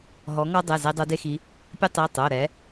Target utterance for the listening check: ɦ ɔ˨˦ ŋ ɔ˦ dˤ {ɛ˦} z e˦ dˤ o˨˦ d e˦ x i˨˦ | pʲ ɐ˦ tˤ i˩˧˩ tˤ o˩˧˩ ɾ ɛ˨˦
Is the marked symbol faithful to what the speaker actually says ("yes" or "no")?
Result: no